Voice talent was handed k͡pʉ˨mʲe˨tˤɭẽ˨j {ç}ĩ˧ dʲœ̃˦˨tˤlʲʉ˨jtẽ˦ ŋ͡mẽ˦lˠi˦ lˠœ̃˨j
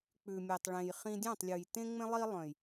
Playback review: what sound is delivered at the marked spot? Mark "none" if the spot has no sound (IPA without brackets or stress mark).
χ